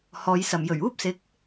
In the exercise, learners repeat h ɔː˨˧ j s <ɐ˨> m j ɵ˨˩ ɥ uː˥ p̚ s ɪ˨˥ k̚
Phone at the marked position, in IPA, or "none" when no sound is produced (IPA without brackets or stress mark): ɐ˨